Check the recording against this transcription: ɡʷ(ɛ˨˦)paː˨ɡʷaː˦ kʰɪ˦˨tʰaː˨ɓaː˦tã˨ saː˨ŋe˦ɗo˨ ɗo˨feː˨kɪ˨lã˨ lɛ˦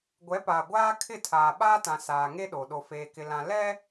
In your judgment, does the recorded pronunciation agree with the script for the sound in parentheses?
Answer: yes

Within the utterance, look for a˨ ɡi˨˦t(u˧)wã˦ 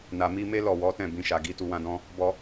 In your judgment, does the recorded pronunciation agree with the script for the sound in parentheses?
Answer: yes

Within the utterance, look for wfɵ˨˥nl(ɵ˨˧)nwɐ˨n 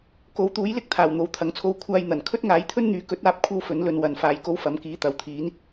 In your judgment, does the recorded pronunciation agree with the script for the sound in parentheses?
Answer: no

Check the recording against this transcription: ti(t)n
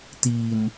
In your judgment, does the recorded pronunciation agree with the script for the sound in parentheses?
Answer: no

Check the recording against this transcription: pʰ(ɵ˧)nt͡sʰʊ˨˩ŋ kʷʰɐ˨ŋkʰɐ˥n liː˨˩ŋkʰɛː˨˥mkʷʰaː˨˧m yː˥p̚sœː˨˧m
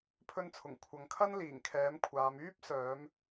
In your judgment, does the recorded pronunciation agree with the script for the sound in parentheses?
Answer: yes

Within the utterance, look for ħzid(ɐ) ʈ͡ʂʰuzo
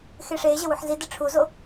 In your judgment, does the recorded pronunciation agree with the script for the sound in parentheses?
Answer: no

